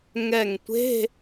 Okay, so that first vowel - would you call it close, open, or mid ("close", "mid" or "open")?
mid